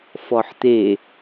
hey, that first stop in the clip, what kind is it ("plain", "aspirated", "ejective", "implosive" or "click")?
plain